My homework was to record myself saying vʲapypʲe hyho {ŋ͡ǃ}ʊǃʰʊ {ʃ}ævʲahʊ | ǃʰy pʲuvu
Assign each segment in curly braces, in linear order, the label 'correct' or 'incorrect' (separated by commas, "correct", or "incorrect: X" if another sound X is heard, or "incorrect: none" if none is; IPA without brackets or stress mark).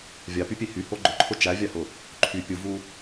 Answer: incorrect: ɡ͡ǃ, incorrect: t͡ʃ